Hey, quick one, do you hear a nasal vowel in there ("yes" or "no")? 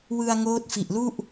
no